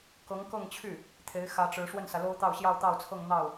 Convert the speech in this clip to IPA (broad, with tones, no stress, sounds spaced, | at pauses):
k ɤ˧˥ ŋ k ɤ˥˧ ŋ t͡ɕʰ y˥˩ | t̪ʰ e˧˥ ɪ̯ x ä˧˥ ʈ͡ʂ ɻ̩˧˥ ʂ w ə˥˩ n s ä˩ l o˥ ʊ̯ t̪ ɑ˥˧ ʊ̯ ɕ j ɑ˥˧ ʊ̯ t̪ ɑ˥˧ ʊ̯ t͡sʰ ɤ˥˧ ŋ n̪ ɑ˥˩ ʊ̯